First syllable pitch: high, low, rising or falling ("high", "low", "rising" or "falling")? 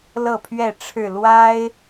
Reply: falling